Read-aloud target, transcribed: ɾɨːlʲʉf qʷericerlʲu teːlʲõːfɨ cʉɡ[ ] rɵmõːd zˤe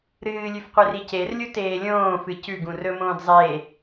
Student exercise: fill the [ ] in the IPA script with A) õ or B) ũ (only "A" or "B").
B